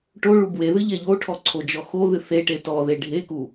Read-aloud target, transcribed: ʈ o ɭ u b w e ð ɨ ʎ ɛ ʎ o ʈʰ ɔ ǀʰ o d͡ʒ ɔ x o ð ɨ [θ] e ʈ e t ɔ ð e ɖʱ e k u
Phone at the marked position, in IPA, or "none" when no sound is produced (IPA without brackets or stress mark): θ